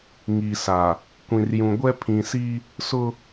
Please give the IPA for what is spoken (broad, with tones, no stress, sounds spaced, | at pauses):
ŋ i˨ s a˨ | kʷ ĩ˨ r j ũ˨ ɡʷ ɛ˦ pʰ ĩ˨ s i˦ | s ʊ˦